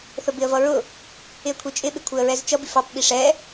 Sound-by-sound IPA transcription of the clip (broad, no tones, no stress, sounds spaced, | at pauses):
θ ə b ɪ ə̯ v ʌ ɹ ʊ | ɪ ə̯ kʷʰ i t͡ʃʼ ɪ ɓ ɪ kʷʰ ɪ ə̯ ɹ ɛ z t͡ʃ ʌ b i f ɑ p ɓ i ʂ ɛ